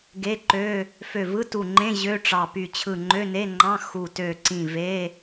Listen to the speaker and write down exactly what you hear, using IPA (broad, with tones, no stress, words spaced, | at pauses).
ɡe˧˥˧ǃø˧˥˧ | fø˧˩vɯ˧˥˧tu˧˩ŋ͡ǃẽ˧˥˧ ʑø˧˥˧ʈ͡ʂɑ˧˩py˧˩ t͡ɕʰɯ˧˩ŋ͡ǃø˧˥˧ne˧˥˧ŋ͡ǃɑ̃˧˥˧ xu˧˩tø˧˩ǀĩ˧˩ ve˧˥˧